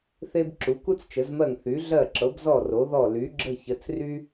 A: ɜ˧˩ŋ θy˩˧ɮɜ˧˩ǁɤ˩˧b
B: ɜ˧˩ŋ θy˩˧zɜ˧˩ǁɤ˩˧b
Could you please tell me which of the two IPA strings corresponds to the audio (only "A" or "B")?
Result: A